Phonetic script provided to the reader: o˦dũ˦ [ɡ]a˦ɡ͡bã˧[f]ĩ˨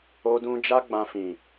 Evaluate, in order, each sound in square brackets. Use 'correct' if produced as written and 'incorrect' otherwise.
incorrect: d͡ʒ, correct

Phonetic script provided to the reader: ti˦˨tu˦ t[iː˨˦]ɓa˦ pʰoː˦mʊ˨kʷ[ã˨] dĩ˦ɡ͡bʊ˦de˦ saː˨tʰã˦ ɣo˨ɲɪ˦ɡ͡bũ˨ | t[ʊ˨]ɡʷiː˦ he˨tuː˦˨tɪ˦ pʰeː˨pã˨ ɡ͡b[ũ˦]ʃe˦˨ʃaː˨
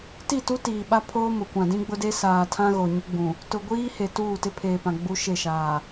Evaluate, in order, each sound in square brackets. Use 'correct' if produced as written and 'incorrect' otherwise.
incorrect: iː˨, correct, correct, incorrect: u˦

